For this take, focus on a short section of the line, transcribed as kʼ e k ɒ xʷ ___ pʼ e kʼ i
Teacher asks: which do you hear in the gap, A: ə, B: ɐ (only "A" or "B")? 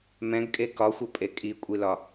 B